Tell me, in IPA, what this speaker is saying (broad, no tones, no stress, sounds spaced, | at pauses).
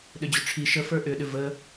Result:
ɗ ʏ d͡ʑ ʏ ʈ͡ʂʰ i ʃ ə f ə˞ ʔ ʏ ɗ ʏ v ə